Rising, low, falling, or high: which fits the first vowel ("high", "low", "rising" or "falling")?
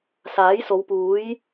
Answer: rising